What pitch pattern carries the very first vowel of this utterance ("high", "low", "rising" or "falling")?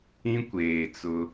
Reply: high